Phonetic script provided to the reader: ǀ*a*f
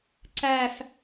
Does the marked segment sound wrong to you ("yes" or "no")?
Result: yes